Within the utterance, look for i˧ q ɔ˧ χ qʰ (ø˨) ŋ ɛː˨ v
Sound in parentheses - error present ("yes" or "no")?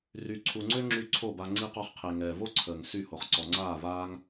yes